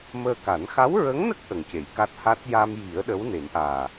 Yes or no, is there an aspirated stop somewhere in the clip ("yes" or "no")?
no